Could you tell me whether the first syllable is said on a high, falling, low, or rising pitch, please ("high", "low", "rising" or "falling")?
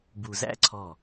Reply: low